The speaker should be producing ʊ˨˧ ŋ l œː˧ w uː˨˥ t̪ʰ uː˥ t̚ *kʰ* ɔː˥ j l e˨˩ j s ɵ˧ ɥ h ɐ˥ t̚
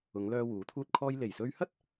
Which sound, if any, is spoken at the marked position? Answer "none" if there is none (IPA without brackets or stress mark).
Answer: kʰ